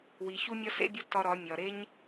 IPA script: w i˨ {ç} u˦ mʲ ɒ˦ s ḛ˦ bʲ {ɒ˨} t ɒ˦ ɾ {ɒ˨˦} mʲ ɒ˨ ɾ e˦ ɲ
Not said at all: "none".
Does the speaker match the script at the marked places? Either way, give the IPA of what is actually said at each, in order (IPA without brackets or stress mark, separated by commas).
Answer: ç, ɒ˦, ɒ˨˦